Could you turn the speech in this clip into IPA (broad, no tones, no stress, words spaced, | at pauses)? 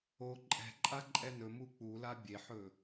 o ǃʼɛ̤ǃʼa ǃʼɛnɵ muk͡pula bʲeħɵ